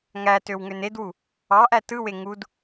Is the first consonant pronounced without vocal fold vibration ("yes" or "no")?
no